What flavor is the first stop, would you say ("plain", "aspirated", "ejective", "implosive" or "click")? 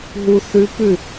plain